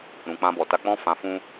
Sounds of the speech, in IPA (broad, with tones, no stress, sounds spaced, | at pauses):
ɾ ũ˨ k͡p ã˧ b ɔ˨ t a˧ k͡p ɔ̃˦ f ã˧ f ũ˦